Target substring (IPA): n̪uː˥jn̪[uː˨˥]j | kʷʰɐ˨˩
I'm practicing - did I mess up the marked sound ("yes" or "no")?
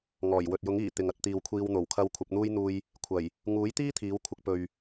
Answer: yes